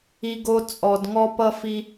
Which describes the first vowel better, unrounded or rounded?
unrounded